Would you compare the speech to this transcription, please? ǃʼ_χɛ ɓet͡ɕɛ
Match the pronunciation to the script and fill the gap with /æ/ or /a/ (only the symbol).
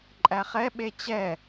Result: æ